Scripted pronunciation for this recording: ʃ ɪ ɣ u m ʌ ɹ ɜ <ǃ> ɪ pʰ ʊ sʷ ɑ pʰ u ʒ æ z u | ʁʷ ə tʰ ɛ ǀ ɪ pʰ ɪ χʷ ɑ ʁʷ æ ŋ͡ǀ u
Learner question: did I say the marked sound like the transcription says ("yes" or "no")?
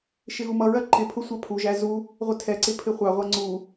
yes